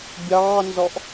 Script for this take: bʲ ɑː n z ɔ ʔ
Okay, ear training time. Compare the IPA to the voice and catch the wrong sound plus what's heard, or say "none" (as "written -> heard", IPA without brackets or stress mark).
none